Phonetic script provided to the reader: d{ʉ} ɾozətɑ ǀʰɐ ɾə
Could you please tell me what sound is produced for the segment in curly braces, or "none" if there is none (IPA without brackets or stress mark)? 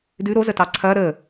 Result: ʉ